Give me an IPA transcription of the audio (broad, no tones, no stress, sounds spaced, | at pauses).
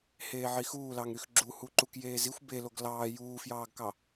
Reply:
h eː ʕ i x uː l ɑ ŋ ɾ y x ɡ͡ǁ u h u ǃ u k j eː z i xʷ b e l o ɡ l ɑː j uː f j ɑː ɡ k ɑ